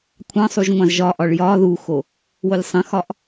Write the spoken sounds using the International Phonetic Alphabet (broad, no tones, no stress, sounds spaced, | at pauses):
kʷʰ ɑ̃ sˤ u ʒ ŋʷ ɑ̃ z ʒ ɒ ʔ ɒ ɭ j ɒ ð u x o | w o lʲ sˤ ə̃ x ɒ ʔ